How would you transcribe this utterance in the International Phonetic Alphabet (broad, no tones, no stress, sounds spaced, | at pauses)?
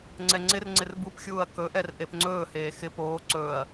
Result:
ŋ͡ǀ ɛ ŋ͡ǀ ɪ r ŋ͡ǀ ɪ r b u p xʲ uː ɐ̯ k ɵ ʔ ɛ r ʔ e p ŋ͡ǀ ɵː h eː x ɪ p oː ǀ ɵː ɐ̯